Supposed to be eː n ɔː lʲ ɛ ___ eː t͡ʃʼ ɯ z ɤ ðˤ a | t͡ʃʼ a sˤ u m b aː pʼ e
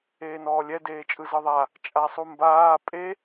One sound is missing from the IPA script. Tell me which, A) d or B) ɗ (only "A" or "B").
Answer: A